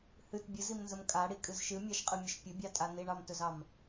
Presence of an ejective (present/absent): present